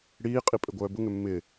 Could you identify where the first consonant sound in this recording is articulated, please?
retroflex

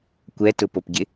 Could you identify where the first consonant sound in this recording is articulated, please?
velar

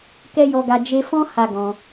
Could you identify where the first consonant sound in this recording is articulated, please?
velar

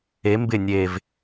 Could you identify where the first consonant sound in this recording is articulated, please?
labial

